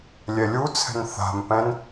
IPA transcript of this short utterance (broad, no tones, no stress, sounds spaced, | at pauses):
lʲ ɛ lʲ u t͡sʰ ɛ̤ n θ a̤ m p ɛ̃ n